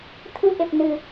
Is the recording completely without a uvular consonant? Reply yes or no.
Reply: yes